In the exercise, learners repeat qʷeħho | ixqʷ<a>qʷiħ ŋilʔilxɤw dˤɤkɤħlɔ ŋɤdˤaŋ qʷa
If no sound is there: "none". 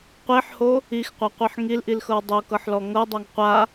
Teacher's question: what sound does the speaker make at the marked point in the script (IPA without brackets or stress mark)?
a